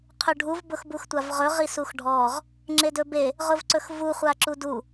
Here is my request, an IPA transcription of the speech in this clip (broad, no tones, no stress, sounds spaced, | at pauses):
qʰ ɵ ɖʱ u v b ʊ x b u x tʷ a v ʁ ɵ ʁ i s u x ɖʱ ɔ ʁ | ŋ͡ǁ e d ɵ b e | ʁ ʊ v ǀ ɵ x v u χʷ a ǁ u d u